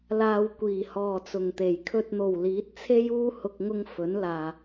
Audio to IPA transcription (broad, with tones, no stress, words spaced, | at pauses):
laː˨wkʷiː˨˩ hɔː˨˩ t͡sʊ˨˩ŋt̪e˨˩j kʰɵ˨t̚n̪o˨˩w liː˨˥t̚t͡sʰe˥j uː˧ hʊ˨k̚ŋʊ˧ŋ fɵ˨˥nlaː˨